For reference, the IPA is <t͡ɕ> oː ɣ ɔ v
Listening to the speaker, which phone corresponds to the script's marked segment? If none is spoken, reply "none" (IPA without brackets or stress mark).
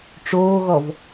ʈ͡ʂ